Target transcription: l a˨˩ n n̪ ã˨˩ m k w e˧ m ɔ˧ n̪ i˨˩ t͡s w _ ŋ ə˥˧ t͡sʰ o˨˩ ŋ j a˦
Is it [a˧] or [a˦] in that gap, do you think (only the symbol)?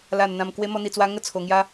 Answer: a˧